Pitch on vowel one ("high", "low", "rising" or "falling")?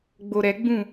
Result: low